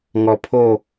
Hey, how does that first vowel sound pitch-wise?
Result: low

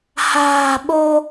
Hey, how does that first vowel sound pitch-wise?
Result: low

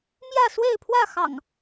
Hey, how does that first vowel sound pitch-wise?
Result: falling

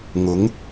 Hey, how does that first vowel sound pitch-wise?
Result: rising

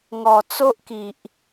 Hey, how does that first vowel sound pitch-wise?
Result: low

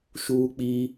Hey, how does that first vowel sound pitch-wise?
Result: high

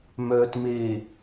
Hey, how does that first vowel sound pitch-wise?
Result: low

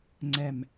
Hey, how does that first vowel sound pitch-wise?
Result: low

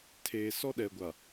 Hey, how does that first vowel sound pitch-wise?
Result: low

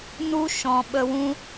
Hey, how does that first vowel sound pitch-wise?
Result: high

